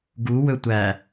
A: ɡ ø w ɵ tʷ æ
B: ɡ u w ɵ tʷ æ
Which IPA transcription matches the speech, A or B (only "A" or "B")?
B